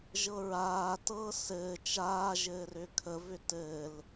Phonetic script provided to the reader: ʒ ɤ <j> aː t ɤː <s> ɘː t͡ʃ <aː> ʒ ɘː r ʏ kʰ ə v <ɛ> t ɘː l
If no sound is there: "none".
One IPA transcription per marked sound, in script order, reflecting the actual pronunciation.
ɹ, s, aː, ʏ

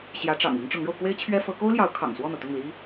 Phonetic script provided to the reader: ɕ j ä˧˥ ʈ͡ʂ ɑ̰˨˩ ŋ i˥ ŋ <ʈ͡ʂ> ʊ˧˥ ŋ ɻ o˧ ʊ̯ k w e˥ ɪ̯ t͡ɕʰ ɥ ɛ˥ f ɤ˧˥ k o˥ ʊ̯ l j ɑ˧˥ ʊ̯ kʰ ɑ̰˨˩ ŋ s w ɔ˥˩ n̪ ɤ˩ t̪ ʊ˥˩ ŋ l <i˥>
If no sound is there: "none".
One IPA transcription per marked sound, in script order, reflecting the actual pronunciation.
ʈ͡ʂ, i˥

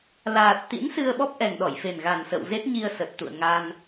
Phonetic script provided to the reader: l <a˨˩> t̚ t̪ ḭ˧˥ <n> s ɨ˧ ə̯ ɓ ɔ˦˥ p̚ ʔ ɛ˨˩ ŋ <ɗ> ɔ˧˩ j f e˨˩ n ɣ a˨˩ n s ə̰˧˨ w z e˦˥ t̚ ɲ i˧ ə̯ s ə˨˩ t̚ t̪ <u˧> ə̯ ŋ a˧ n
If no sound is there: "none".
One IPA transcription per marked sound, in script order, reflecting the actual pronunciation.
aː˨˩, n, ɗ, ṵ˧˨

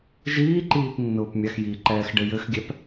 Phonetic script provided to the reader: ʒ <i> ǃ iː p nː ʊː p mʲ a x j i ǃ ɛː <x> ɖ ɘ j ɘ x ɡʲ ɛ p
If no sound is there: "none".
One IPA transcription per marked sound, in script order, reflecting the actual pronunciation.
iː, x

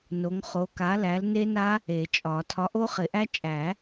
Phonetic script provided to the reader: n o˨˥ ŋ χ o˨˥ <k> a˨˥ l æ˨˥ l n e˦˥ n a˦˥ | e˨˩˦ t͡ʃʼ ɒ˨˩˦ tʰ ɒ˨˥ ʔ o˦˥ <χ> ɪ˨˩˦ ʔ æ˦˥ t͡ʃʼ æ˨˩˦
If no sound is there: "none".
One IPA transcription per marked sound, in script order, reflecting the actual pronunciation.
k, χ

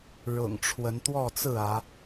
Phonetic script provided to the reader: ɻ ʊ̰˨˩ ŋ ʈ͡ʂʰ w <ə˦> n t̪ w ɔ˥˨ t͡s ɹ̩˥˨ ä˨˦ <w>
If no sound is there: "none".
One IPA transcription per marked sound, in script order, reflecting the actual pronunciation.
ə˨˦, none

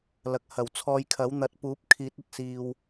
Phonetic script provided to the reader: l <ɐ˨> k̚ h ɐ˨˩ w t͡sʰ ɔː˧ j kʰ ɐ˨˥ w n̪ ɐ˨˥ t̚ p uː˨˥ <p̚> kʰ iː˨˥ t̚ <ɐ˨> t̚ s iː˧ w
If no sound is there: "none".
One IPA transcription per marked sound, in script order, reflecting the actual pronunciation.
ɐ˨, p̚, ɐ˨

